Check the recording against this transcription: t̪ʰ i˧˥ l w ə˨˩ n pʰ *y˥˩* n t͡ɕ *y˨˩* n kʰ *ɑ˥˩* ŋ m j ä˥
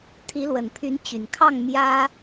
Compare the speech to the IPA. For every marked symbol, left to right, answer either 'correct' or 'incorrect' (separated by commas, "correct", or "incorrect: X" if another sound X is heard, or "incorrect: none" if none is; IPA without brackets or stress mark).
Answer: incorrect: y˧˥, correct, correct